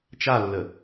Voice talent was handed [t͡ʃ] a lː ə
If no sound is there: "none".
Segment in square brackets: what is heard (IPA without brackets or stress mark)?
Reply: t͡ʃ